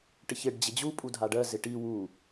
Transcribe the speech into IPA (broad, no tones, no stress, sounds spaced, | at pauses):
ʈ ɪ ç ɪ ɖ d͡ʑ ɪ d͡ʑ u pʼ u dʱ a ɖ ɜ z ɪ ʈ i w u